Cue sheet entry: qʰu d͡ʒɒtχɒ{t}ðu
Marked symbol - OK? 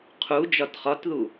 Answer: yes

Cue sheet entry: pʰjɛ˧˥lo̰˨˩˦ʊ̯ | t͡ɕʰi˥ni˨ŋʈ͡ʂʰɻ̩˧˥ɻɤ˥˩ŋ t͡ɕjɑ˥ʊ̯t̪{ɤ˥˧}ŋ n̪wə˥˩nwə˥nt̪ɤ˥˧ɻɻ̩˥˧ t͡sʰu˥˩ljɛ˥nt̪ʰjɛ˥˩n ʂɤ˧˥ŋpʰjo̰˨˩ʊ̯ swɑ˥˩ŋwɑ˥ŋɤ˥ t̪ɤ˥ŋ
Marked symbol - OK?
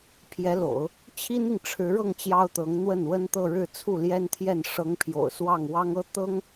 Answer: no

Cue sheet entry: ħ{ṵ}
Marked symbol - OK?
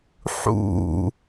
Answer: yes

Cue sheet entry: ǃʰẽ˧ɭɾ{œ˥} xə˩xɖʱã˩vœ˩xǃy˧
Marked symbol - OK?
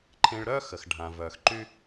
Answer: yes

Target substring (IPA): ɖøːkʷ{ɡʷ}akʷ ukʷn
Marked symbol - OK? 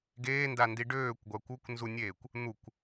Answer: yes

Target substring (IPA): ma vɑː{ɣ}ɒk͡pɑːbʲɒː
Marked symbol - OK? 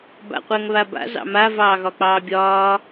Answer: yes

